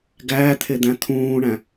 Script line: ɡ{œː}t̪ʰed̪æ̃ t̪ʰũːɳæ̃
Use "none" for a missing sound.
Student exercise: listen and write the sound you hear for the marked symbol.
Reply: æː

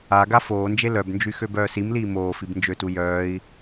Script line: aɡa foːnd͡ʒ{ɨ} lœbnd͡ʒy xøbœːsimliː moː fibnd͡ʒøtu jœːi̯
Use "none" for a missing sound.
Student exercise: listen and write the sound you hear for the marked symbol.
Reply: e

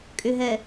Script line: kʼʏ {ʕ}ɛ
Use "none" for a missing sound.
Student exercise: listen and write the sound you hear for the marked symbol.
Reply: ɦ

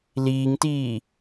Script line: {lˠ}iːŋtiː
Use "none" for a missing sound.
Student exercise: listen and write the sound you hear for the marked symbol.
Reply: l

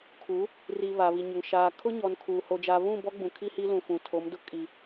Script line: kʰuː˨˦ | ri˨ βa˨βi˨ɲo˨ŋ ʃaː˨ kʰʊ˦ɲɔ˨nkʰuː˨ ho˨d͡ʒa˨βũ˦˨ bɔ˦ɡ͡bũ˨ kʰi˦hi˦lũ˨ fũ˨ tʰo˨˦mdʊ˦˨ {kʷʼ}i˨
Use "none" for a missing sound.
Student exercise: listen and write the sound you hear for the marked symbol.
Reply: kʼ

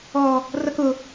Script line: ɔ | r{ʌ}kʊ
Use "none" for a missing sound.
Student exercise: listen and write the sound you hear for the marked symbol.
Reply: ʌ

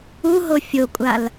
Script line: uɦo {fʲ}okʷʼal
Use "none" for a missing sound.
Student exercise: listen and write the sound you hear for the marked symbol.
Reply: fʲ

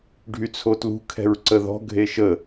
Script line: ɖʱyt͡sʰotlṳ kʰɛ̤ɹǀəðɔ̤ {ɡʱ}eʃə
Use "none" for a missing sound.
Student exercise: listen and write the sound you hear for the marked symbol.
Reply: ɡʱ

